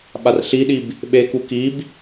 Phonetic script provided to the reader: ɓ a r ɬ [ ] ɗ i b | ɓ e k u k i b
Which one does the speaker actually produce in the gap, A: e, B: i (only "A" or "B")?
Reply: B